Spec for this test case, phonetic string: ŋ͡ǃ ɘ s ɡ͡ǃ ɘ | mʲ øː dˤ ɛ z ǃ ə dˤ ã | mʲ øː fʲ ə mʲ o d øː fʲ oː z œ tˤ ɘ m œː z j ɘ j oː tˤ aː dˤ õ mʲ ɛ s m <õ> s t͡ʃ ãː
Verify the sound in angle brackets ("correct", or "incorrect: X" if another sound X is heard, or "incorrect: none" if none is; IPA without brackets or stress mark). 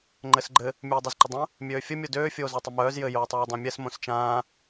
correct